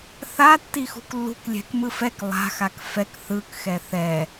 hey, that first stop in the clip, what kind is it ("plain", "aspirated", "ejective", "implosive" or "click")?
plain